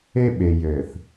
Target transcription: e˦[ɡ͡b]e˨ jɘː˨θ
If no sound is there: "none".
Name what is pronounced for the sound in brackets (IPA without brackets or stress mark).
ɓ